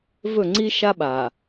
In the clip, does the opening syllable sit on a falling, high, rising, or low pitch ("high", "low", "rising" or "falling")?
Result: falling